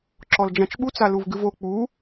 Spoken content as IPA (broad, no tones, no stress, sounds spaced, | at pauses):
ǁ ɔ l d͡ʒ ã t͡ʃ ɓ u t͡s a l u v ɡ ɨ v o k͡p u